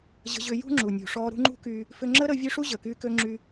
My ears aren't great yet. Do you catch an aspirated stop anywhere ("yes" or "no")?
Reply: no